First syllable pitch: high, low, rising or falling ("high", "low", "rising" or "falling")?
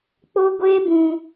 high